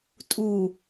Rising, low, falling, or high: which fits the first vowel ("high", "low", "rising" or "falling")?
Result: low